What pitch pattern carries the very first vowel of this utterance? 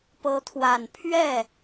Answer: rising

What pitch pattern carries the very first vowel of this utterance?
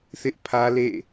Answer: high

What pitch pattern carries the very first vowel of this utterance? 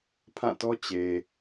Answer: falling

